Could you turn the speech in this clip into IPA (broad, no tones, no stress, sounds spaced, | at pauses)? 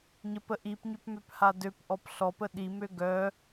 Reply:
ɲ ə p ə ʔ i p ɲ ø p m ø p h a d ø p ʔ ɔ p ɬ ɔ p ə ɗ i m ø ɡ œ